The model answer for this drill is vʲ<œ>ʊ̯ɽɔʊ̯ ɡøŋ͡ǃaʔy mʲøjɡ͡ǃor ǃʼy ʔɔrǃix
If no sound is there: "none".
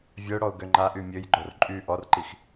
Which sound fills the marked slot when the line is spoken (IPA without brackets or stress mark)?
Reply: œ